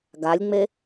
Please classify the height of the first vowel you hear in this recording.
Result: low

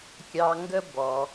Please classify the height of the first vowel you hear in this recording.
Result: low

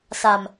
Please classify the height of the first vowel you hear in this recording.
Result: low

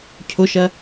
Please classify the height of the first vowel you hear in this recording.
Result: high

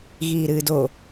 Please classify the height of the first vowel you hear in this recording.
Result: high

